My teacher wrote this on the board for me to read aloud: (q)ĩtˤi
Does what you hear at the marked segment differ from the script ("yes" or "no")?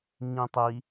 yes